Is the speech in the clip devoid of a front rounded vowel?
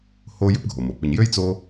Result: no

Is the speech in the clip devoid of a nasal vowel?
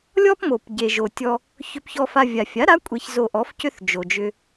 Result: yes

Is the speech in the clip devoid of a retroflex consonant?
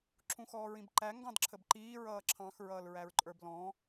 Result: yes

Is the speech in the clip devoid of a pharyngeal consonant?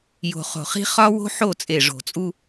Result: no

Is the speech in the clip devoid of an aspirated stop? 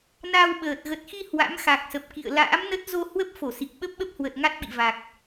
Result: yes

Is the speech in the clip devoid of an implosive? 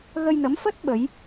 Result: no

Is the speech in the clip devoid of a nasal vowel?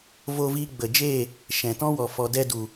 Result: no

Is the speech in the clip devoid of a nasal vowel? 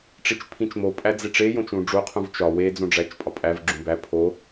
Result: no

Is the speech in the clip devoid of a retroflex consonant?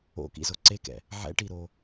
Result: no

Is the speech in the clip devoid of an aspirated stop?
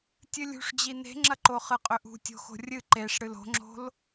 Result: yes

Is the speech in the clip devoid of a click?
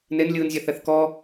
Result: yes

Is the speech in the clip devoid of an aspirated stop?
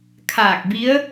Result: no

